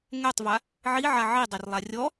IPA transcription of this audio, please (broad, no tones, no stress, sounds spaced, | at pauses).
ŋ ɛ tˤ v a | ʕ i ʕ a ʕ i dˤ e r lˠ a rʲ ɔ